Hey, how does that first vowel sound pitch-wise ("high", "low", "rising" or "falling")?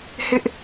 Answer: high